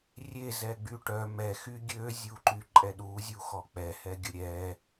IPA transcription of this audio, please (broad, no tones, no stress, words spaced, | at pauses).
rʲe zɛɡ͡byʈœ mɛxy ɡʲøzʲuǃy ǃʼɛɗuzʲuxɔ k͡pɛhɛɡʲə ɾʲɛ